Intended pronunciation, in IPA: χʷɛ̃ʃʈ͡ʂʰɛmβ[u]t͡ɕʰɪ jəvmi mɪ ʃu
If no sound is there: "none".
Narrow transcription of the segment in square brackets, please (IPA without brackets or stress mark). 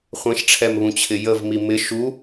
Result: ũ